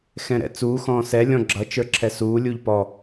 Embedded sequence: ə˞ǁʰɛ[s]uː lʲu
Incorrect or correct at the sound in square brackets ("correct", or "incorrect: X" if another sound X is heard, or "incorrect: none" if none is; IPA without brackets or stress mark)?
correct